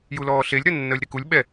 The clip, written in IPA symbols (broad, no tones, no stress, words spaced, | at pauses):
julɔːɬelʲ ɾɜnːəːlʲɾekulʲ ɓɛ